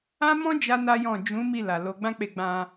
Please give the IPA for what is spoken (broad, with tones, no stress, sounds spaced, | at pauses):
ã˦ m ɔ̃˦ d͡ʒ a˦ n a˦ j ɔ̃˦˨ d͡ʒ ũ˨˦ m i˦˨ l a˨ l o˨˦ ɡ͡b ã˦ k͡p e˧ ɡ͡b ã˧